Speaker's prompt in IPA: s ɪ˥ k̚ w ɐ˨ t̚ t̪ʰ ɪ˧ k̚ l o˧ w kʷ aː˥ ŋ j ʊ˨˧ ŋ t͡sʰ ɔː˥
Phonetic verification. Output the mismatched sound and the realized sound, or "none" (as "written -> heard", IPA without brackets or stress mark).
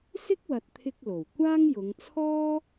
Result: o˧ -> o˨˩